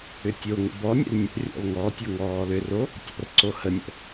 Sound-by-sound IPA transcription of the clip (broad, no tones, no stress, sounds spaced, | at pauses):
ʏ tʲ o ŋ ə̰ b ɔ nʲ ə̰ l nʲ ə̰ rʲ ɔ̰ l ŋ ɔ tʲ o ŋ ɔː l ʏ r o | tʲ ɔ̰ r ǀ o h ə nʲ ə̰